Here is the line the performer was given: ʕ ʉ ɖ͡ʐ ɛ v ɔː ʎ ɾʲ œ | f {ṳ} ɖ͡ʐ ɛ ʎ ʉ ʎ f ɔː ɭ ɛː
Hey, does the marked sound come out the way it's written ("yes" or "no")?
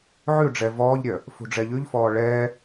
yes